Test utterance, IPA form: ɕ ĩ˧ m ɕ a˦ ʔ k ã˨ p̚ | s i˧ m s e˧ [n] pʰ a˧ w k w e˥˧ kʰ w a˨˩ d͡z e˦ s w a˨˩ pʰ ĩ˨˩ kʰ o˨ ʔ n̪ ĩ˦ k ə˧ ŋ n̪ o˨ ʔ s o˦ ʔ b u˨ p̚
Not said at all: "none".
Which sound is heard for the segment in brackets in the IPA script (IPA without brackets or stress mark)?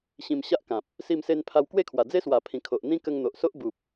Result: n